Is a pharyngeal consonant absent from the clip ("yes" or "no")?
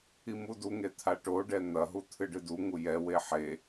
no